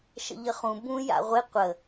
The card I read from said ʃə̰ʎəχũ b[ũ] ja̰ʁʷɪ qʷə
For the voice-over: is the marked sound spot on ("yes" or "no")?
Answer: yes